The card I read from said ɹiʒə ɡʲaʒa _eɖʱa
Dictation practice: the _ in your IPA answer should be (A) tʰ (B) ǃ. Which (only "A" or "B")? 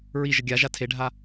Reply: A